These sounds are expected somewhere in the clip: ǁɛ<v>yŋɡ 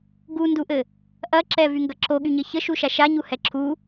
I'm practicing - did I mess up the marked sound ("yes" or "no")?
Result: no